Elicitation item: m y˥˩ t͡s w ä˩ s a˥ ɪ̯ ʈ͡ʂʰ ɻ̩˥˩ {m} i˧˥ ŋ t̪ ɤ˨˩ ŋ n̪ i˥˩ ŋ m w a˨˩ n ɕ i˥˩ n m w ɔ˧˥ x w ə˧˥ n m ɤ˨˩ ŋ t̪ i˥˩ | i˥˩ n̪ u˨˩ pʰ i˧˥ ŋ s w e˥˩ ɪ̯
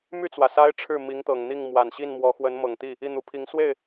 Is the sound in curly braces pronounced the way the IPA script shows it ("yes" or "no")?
yes